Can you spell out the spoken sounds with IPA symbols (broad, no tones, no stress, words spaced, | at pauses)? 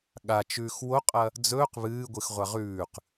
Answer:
ɠat͡ʃʉːx woqʼɐ | d͡zɵːq βɨːɡʷɨxʁʷa ʁʉːq